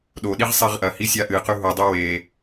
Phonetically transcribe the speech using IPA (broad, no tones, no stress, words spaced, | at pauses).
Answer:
ɗoɗiʁ sˤiʁʔɐhi sʲaʔɨqʉ ɦudˤʉ we